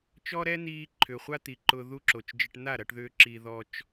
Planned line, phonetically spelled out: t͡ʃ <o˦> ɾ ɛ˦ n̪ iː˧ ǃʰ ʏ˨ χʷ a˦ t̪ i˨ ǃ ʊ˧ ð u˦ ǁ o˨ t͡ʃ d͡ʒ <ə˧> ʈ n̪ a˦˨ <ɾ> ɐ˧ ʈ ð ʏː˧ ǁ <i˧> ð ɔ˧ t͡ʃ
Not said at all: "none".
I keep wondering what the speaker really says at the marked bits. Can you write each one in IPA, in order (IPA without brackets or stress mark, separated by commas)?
ɔ˦, ə˧, ɾ, i˧